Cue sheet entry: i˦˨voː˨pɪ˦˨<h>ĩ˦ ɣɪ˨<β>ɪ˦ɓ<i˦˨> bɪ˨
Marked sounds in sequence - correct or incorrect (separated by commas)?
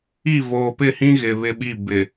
correct, correct, correct